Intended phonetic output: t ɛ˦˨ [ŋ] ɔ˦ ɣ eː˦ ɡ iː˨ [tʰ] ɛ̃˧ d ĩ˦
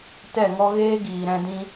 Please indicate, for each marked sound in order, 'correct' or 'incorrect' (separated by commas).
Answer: correct, incorrect